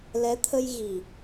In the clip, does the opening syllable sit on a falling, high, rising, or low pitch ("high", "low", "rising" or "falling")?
rising